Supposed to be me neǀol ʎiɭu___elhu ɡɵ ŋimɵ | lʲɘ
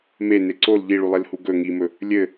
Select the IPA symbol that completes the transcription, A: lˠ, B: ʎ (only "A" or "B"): A